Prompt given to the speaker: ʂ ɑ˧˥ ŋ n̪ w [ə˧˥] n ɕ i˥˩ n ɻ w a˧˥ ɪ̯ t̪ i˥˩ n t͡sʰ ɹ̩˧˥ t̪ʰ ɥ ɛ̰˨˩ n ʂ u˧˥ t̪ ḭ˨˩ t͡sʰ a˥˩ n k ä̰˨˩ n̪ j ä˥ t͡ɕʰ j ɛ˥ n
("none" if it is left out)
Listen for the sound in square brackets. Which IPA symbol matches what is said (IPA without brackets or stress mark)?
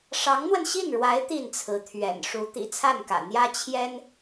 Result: ə˧